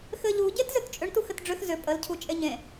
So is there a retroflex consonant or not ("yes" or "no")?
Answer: yes